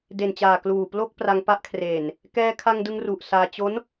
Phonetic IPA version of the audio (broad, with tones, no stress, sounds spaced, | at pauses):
d e˨˩ n t͡ɕ aː˨˩ k l uː˨˩ p l o˥˩ k̚ p r a˧ ŋ p a˦˥ ʔ kʰ r eː˨˩ n | k ɛː˧ kʰ a˧ ŋ d ɯ˧ ŋ r u˨˩ ʔ s aː˧ t͡ɕ o˦˥ n